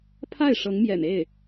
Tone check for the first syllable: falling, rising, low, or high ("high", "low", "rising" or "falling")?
falling